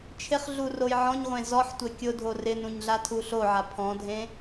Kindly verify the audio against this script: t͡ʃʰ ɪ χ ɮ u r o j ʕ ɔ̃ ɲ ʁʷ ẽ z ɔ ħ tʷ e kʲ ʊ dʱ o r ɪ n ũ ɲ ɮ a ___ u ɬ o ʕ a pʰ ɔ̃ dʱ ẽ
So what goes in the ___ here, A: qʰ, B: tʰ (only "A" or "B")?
B